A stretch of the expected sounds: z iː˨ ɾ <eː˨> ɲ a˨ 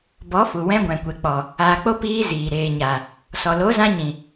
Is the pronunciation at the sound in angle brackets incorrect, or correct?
correct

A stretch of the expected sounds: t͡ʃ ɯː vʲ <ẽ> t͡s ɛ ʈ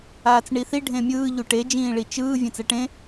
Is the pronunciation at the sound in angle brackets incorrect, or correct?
correct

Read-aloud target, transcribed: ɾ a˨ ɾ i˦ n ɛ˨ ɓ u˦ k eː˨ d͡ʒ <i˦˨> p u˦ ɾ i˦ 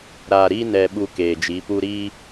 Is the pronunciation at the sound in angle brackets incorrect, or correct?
incorrect: i˨˦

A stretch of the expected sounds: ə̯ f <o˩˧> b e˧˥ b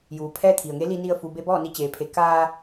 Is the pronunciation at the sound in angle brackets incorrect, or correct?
incorrect: u˩˧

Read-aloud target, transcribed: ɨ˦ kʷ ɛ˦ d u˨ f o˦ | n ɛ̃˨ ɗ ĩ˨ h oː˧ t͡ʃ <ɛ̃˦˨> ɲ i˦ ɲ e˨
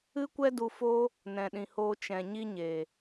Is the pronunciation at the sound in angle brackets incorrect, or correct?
incorrect: ɛ̃˨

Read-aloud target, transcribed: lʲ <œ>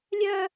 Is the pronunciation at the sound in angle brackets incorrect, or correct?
correct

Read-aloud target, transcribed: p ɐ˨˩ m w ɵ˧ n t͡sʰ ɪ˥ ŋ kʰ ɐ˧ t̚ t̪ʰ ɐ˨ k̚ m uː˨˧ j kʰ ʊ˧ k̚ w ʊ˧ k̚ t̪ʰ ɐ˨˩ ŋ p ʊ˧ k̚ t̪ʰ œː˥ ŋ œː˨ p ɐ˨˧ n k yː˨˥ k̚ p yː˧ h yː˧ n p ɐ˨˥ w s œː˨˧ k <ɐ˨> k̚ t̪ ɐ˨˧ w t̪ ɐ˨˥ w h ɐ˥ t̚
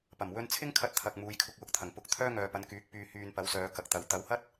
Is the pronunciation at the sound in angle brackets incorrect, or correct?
correct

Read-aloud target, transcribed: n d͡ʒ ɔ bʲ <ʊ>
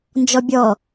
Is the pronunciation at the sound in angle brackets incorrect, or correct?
incorrect: ɔ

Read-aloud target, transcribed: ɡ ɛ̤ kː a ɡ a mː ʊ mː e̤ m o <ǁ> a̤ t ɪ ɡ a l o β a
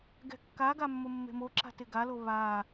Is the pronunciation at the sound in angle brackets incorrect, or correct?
correct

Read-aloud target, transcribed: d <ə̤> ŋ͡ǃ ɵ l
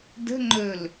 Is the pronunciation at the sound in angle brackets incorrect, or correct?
correct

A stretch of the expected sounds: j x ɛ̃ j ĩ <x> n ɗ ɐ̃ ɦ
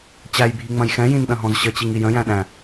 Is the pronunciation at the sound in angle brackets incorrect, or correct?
incorrect: none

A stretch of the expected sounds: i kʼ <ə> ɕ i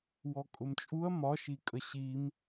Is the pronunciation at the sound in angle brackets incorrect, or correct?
correct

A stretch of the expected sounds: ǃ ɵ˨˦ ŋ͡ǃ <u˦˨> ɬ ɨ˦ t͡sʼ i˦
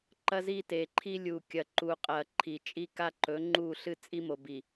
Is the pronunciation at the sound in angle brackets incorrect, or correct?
correct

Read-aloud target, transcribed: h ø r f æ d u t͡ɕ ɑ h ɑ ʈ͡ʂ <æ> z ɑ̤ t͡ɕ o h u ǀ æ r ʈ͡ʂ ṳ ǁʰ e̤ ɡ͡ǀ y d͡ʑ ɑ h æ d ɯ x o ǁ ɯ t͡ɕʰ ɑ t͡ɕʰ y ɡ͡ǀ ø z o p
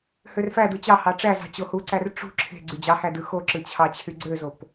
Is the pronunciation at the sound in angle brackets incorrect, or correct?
correct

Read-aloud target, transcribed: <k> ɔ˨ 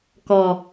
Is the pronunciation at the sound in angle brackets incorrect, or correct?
correct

